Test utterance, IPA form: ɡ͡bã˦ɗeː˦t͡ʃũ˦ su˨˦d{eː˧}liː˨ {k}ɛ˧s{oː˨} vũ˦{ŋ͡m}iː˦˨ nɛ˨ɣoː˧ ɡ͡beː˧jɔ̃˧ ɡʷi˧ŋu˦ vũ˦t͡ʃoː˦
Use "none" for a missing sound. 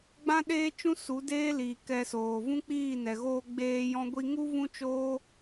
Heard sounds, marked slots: eː˦, k, oː˨, k͡p

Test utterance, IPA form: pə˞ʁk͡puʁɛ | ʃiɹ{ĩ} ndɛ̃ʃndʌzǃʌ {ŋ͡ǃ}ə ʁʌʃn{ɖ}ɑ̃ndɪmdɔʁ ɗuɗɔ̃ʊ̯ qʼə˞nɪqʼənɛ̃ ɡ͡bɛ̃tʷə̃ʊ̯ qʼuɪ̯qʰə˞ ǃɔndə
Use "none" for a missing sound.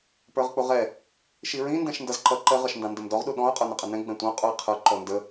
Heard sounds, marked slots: ĩ, ǃ, d

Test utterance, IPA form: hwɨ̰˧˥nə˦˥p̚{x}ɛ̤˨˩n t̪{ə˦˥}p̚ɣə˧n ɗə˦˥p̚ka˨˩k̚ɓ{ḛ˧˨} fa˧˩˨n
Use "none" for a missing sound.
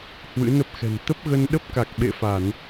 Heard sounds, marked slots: x, ə˦˥, ḛ˧˨

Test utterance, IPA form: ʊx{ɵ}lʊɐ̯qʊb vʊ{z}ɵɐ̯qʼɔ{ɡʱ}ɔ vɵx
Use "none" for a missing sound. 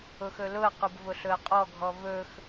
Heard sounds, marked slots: ɵ, ɬ, ɡʱ

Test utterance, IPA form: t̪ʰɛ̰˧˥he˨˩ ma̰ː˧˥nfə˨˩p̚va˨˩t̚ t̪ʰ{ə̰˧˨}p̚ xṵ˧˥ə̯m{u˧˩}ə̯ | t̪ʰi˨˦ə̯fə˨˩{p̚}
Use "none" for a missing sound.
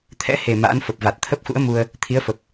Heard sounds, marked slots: ə˦˥, u˧, p̚

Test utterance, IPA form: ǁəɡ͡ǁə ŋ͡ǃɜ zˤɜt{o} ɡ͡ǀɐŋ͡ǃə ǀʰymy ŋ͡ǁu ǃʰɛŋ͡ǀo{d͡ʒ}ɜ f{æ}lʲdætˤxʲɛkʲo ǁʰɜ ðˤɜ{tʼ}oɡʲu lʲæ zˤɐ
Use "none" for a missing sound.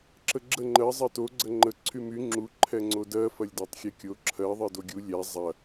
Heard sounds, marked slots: o, d, ɐ, d

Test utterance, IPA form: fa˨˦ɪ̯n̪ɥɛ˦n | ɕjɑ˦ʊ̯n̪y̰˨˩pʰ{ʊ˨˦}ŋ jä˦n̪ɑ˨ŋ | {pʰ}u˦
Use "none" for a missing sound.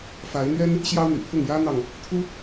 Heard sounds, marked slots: ʊ˥˨, t̪ʰ

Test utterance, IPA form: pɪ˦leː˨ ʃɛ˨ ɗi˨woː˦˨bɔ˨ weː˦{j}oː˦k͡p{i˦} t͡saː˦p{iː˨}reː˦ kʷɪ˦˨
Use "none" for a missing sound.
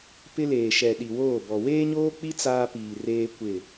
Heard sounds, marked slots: ɲ, i˦, iː˨

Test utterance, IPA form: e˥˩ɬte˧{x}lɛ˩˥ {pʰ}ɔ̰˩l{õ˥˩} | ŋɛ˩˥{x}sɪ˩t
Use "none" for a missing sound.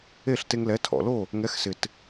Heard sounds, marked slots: ŋ, tʰ, o˥˩, x

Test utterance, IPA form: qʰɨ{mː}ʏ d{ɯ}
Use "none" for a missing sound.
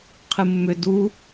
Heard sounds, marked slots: mː, u

